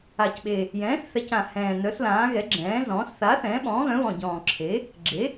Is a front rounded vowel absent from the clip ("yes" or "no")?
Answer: no